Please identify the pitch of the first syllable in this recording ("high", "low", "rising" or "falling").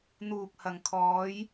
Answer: low